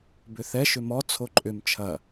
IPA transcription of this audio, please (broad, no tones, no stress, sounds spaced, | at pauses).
b ʏ θ ɛ ʃ ʏ m ɔ t͡sʰ o ǃʼ ʏ m t͡ʃʰ ɐ